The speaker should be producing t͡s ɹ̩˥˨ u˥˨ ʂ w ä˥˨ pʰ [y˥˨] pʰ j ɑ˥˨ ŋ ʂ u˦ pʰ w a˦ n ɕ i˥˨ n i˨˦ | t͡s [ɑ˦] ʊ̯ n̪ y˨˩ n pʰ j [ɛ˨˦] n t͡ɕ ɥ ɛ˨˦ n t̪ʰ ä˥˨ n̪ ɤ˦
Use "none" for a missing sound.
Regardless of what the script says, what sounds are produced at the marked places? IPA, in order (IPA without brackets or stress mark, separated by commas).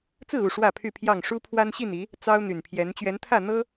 y˥˨, ɑ˦, ɛ˨˦